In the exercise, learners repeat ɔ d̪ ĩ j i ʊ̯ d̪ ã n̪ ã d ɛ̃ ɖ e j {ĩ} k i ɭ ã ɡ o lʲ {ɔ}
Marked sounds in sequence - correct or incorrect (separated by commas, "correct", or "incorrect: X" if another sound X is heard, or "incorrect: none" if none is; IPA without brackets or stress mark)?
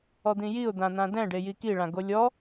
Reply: incorrect: i, correct